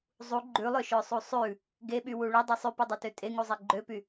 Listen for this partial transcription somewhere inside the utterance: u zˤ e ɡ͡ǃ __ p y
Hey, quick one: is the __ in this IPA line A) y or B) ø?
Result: B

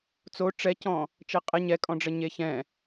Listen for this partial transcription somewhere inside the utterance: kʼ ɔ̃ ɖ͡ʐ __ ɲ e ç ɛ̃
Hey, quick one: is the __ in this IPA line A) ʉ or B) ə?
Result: B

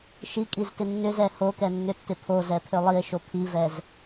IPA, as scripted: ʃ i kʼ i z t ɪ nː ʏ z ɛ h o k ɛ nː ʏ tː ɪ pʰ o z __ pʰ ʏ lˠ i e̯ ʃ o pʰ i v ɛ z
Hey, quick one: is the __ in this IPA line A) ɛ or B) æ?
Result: A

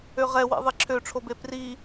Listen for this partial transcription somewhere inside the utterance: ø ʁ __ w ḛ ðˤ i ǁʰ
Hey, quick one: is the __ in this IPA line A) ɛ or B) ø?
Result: A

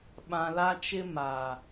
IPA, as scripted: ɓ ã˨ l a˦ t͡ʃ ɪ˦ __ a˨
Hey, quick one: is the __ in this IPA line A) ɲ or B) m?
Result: B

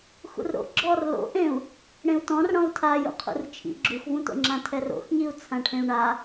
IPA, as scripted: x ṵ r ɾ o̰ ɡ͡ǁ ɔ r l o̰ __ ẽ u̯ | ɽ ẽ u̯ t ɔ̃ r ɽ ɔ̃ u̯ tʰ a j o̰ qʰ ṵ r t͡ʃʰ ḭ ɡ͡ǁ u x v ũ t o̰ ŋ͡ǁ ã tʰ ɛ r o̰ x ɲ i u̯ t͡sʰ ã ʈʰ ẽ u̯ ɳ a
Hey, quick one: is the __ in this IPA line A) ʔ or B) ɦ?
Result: A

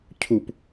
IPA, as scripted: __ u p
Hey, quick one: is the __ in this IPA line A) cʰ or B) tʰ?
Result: A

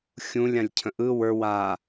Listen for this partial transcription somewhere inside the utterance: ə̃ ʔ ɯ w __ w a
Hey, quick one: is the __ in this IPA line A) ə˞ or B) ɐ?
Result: A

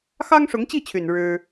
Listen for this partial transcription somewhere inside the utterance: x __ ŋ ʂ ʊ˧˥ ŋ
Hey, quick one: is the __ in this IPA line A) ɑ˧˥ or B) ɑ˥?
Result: B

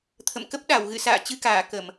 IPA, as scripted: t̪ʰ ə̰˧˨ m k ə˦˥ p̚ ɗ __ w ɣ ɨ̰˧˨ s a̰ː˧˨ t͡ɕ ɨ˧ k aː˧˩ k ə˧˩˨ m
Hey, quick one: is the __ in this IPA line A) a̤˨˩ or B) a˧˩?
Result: B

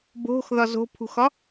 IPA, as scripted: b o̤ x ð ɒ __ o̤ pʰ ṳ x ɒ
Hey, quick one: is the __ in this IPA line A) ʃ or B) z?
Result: B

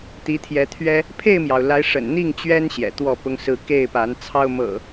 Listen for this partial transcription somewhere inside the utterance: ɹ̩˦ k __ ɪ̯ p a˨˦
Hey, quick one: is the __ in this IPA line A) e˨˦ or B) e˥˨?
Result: B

